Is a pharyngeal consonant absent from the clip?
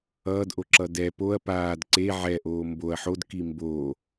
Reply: no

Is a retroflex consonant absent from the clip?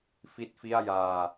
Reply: yes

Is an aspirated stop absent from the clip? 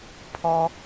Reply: no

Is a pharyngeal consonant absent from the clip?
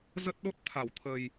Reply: yes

